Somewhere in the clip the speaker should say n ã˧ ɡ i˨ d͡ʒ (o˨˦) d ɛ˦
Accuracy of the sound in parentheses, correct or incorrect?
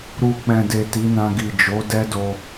correct